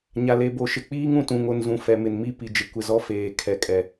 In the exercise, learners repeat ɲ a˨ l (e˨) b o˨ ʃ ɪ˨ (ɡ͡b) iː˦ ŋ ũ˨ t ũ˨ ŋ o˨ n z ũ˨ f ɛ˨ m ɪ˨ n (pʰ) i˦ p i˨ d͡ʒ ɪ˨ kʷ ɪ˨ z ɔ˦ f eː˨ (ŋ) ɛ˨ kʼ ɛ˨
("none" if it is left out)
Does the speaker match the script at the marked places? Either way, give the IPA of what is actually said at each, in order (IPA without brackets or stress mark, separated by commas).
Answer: e˨, k͡p, m, kʰ